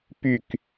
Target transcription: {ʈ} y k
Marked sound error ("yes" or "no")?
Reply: yes